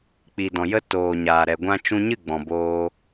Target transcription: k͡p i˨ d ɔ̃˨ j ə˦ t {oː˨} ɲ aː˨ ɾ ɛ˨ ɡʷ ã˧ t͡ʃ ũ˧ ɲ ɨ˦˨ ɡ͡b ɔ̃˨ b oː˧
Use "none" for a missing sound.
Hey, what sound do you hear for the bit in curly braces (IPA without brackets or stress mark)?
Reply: oː˨